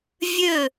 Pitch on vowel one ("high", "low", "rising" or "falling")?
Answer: falling